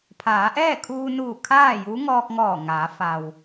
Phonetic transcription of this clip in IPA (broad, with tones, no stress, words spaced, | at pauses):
pʰaː˩˧ʔɛː˥˨kʰuː˧nuː˧˩ kʰaː˥˨ju˧˥ ŋɔː˧k̚ŋɔː˧˩ ŋaː˩˧ fa˩w